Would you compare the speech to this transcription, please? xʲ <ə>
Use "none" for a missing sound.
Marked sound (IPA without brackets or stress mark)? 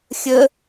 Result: ə